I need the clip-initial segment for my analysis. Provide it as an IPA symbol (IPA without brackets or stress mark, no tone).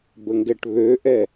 b